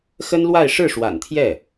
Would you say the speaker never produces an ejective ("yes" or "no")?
yes